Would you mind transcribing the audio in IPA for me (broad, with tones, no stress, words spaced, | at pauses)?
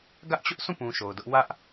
ɡä˦ʔt͡ɕʊ˦ʔsũ˦˨pũ˨ ʃo˨ʊ̯dʊ˦ʔ wä˦ʔ